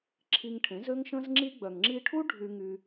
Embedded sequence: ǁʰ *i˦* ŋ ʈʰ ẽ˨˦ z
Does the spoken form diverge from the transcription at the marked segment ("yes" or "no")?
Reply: yes